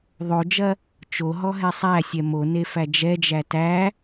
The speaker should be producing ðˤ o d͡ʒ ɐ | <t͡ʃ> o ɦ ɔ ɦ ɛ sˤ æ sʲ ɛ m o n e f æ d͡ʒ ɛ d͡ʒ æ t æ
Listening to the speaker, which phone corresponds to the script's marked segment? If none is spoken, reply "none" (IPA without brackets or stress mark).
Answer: t͡ʃ